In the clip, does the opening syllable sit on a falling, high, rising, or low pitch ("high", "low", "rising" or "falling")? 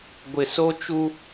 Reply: low